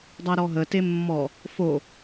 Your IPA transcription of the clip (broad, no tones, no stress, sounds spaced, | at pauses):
dˤ æ ɾ ɔ ɦ ə t e mː ɔ | f o